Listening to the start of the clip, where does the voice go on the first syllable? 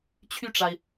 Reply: falling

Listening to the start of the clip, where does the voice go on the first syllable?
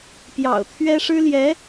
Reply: low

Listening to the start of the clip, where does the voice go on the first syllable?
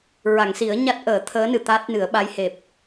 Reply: low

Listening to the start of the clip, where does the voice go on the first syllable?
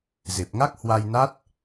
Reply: low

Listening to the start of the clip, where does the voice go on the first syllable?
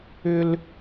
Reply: high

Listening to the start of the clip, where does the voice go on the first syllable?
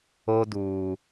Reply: low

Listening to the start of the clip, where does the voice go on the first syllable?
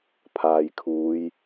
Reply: low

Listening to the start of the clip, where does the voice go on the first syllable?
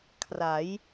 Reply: rising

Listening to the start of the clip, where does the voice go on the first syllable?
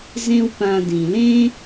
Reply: high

